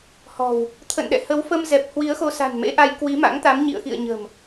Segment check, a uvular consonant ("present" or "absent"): absent